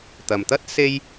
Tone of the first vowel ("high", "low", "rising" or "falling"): low